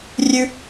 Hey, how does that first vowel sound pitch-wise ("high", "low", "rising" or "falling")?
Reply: high